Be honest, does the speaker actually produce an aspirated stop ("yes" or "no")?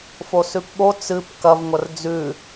no